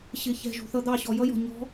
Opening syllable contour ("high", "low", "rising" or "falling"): low